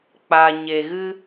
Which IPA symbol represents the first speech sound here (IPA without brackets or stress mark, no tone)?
k͡p